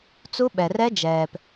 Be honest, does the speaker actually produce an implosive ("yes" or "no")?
yes